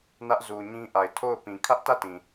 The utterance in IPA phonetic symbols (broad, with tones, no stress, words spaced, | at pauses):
nä˦ʔzu˨ɲĩ˦ʔa˨ɪ̯ tʰo˦˨ʊ̯pĩ˨ kʰä˦ʔtä˦˨tĩ˨